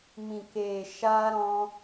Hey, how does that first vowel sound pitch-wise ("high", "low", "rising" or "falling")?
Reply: low